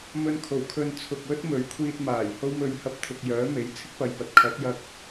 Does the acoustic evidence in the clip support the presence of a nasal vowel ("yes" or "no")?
no